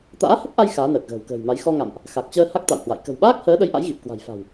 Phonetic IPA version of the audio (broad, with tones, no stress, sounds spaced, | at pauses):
t̪ a̰ː˧˥ h ə˦˥ p̚ ʔ a˧ j x aː˨˦ n əː˨˩ k̚ ɣ ə̤ː˨˩ w k ə̤ː˨˩ j m a˨˦ j x ɔ˧ ŋ a̰˧˨ m ʔ | x a˨˩ k̚ t͡ɕ əː˧ h a˦˥ k̚ t̪ a̰˧˨ w h w a̰˧˨ j k ə̤˨˩ w ɓ aː˦˥ k̚ h əː˨˦ ɗ ə˨˦ j ʔ a̰˧˥ j ɣ i˨˩ p̚ k w a̤˨˩ j f a̤˨˩ w